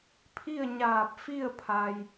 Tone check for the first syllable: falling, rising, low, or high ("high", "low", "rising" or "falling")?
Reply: falling